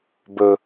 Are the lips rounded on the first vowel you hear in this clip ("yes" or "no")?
yes